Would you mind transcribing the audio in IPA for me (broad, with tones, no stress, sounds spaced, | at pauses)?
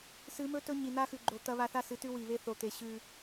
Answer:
s ɨ˨˦ m ɵ˦ t ɵ˦ ɲ i˨ n̪ a˦ x ʉ˨ ɡ͡ǃ o˨ t̪ ɐ˦ β a˦ θ a˦ s ɨ˨˦ t ʉ˦ w i˨ β e˦ θ o˨ t̪ e˨ ɕ ʉ˦